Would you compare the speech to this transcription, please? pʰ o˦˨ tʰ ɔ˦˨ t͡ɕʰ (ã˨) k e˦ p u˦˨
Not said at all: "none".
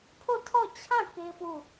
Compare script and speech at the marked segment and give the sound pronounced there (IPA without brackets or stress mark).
ã˦˨